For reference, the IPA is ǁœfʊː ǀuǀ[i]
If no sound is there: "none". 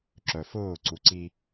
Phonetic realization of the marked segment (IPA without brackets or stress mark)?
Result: i